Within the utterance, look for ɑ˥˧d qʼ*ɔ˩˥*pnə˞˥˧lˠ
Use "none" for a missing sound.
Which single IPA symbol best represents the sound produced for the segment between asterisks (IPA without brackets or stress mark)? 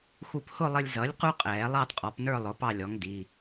ɔ˩˥